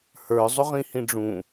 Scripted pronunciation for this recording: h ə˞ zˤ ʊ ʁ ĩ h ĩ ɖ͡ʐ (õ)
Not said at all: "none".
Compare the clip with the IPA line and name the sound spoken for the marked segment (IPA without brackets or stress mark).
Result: ũ